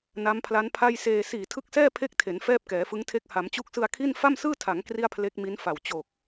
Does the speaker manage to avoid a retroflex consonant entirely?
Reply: yes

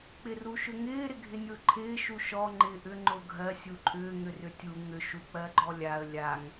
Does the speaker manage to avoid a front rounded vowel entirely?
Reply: no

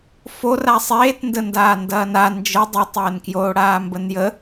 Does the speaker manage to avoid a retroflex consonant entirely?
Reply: no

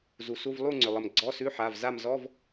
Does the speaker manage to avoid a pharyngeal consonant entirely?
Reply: no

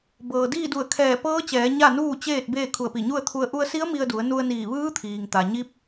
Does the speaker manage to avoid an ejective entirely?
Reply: yes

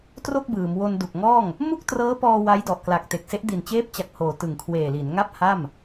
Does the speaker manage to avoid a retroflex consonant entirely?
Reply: yes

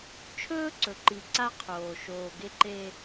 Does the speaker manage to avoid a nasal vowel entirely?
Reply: yes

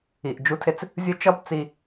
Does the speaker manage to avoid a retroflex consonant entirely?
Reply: yes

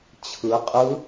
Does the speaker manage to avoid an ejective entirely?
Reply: no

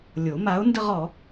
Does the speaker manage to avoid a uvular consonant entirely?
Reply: no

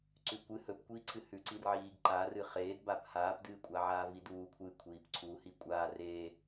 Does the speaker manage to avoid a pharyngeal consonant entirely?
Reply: no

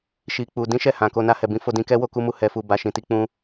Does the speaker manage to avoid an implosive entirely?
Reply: yes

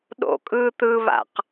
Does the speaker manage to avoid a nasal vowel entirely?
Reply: yes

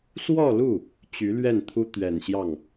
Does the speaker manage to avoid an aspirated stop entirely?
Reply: no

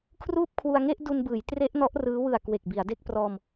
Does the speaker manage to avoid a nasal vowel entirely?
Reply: yes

